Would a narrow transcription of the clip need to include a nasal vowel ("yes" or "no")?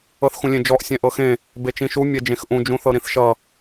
yes